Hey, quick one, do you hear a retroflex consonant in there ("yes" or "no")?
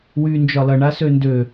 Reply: yes